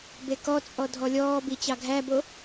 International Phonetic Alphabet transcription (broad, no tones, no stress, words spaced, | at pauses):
bekɔt͡sʼɔ dʱɔlʲɔːbi t͡ɕɑɡʱæbo